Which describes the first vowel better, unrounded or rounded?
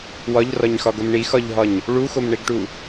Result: rounded